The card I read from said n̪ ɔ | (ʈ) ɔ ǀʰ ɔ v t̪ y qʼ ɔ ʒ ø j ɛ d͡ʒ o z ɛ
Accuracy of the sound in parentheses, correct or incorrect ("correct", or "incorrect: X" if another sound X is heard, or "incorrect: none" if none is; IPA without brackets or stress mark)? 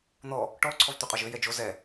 correct